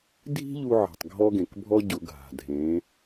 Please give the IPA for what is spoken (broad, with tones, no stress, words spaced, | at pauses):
dʱi̤˥ʎu˧ʕi̤˩tˤ ɡʱɔ˧ɡẽ˩kbʱɔ˧ ɟʊ˩˧ ɡʱa̤˩dʱẽ˩˧